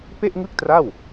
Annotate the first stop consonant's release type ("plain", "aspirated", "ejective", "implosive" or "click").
plain